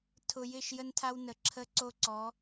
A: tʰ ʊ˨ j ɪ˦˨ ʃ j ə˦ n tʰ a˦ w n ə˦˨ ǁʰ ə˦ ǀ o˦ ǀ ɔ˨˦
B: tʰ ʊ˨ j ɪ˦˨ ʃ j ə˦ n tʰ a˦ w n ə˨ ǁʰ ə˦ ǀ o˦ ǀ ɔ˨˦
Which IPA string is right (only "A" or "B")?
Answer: B